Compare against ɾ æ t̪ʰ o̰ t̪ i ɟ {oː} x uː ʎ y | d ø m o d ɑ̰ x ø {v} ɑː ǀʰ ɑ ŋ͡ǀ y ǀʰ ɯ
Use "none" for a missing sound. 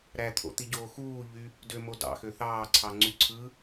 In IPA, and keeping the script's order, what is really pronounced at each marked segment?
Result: oː, θ

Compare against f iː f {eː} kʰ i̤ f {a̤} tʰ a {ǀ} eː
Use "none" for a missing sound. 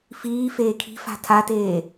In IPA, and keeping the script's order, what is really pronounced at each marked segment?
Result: eː, a̤, t

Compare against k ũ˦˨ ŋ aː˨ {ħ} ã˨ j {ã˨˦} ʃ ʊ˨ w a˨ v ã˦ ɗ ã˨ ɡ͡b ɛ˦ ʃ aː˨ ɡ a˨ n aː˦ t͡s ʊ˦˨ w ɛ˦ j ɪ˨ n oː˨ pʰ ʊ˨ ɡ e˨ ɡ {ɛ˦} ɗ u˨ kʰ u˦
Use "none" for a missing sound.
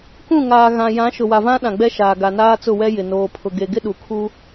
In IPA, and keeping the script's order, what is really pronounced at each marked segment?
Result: ɣ, ã˨˦, ɪ˦

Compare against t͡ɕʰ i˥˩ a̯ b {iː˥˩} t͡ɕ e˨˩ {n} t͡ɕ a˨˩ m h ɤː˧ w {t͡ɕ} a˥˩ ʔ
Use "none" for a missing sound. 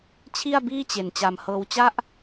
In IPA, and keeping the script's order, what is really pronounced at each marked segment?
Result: iː˥˩, n, t͡ɕ

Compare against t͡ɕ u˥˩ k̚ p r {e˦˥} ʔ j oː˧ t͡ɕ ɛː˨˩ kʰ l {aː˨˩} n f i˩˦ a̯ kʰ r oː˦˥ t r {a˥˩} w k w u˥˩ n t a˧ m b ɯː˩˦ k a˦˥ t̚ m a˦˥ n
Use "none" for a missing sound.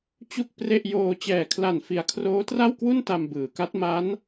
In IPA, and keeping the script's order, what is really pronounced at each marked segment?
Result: e˥˩, a˨˩, a˥˩

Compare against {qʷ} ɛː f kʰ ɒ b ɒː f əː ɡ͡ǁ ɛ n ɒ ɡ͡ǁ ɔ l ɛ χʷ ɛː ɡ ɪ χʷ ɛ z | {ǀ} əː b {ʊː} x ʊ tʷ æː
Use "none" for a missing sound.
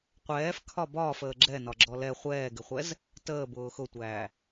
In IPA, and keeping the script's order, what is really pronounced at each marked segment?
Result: qʷ, t, ʊː

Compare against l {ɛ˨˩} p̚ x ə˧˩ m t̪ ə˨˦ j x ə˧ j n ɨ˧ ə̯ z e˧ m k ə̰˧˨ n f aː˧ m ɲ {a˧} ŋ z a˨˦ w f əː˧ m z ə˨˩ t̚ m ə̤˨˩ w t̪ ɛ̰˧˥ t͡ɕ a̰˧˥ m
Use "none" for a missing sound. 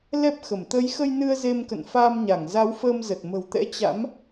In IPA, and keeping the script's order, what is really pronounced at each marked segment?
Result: ɛ˦˥, a˧˩

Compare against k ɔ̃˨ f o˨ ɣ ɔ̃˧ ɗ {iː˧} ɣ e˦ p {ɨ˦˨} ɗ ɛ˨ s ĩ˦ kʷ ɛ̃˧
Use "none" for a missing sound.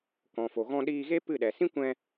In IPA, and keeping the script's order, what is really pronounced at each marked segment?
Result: iː˧, ɨ˦˨

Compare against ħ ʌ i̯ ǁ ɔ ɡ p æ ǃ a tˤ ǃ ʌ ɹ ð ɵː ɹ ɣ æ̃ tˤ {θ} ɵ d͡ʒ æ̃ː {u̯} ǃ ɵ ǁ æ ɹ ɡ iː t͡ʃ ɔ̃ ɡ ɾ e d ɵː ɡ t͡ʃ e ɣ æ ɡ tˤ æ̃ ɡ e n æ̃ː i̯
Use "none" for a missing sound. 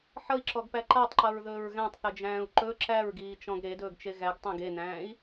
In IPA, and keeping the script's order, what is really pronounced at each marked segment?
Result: θ, u̯

